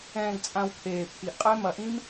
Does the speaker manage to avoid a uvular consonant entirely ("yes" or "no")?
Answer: no